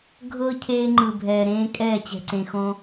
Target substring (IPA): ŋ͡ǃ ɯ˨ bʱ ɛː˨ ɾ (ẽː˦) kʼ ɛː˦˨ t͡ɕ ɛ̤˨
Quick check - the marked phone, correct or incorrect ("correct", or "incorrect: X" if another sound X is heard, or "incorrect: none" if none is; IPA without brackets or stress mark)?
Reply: correct